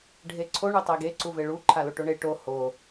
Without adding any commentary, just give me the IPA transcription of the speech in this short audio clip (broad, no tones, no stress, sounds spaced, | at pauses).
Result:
ɖʱ e ǀʰ o ɳ u tˤ ɛ ɡ e ǀ u v e ɭ u ǃʰ a l o ʈ o ɳ e ʈ o h o